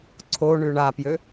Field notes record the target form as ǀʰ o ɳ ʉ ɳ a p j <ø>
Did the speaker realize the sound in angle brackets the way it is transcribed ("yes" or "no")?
yes